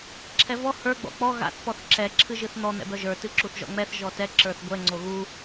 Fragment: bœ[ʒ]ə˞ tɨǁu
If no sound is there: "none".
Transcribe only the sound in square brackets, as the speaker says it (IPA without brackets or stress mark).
ʒ